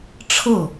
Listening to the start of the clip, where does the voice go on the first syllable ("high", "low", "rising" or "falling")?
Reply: falling